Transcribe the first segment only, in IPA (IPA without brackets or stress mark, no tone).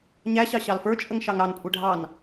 ɲ